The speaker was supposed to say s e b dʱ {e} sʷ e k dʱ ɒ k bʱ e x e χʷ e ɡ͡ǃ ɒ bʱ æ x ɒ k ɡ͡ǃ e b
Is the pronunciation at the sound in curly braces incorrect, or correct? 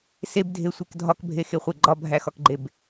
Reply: correct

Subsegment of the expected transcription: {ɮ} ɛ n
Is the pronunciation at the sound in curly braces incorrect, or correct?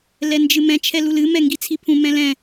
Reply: incorrect: l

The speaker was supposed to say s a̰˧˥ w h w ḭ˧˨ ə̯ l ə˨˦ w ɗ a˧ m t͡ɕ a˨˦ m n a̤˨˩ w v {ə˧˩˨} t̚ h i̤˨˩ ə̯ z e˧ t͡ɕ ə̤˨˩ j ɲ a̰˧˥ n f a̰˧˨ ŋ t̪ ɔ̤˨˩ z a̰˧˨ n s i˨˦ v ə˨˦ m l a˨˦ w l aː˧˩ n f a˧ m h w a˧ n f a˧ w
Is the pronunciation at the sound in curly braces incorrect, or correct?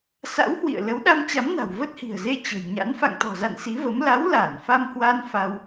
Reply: incorrect: ə˦˥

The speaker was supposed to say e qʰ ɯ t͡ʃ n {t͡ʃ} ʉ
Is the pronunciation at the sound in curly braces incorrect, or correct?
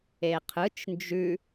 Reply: incorrect: d͡ʒ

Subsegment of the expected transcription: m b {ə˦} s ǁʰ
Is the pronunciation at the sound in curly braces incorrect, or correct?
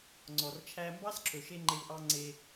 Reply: incorrect: ɑ˦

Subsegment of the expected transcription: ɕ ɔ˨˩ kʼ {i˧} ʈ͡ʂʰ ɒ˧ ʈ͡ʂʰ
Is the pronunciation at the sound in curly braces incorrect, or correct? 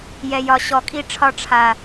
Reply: correct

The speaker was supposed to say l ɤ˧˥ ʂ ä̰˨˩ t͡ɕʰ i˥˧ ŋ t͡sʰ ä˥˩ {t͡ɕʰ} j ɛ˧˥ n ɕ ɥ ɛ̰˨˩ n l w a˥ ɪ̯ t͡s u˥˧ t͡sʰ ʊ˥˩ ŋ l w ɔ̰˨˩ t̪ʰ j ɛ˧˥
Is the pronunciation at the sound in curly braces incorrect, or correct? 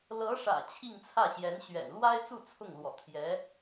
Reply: incorrect: ɕ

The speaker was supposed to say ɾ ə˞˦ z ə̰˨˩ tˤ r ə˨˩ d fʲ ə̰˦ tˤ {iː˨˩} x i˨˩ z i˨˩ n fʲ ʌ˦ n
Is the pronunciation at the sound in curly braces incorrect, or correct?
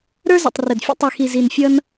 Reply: incorrect: i˨˩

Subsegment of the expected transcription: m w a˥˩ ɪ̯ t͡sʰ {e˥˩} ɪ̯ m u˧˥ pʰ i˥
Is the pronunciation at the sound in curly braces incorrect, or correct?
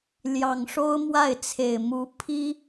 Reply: incorrect: e˨˩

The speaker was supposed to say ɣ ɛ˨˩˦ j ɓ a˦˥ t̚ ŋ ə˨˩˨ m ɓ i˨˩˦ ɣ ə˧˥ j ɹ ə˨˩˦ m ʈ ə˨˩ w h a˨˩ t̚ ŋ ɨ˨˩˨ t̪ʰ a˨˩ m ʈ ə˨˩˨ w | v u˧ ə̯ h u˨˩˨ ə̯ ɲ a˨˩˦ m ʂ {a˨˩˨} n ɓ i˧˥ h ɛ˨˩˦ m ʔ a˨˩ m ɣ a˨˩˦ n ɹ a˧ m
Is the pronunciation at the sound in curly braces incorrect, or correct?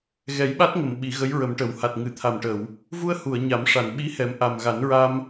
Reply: correct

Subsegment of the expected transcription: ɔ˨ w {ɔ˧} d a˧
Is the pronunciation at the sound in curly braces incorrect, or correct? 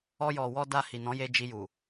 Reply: correct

